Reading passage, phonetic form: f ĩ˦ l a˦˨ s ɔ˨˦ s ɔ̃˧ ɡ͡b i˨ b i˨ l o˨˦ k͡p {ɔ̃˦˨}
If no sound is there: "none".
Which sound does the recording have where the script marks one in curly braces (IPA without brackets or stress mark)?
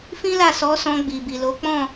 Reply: ɔ̃˦˨